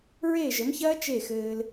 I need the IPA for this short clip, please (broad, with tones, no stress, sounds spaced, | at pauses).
ɹ eː˦˨ ʒ ə˨˦ m ç ɐː˦ t͡ʃ e˦˨ x ɘː˧ l